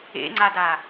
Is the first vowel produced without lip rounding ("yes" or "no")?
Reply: yes